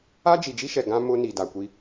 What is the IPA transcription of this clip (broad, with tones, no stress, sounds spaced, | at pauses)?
a˦ d͡ʒ i˨ d͡ʒ i˦ ʃ ɛ˨ ɡ ã˦ m ʊ˦ n i˨ d a˨ kʷ i˦